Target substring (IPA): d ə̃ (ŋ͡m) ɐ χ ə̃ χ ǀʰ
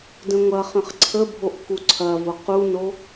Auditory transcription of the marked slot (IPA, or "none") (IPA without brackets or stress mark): ŋʷ